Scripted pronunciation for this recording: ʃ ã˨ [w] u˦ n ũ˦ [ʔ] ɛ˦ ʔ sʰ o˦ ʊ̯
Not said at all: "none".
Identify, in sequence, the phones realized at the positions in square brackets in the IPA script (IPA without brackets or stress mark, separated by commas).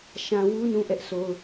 w, ʔ